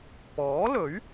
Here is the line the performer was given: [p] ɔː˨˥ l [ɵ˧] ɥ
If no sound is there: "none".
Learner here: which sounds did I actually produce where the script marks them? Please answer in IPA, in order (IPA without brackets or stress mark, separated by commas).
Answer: p, ɵ˨˥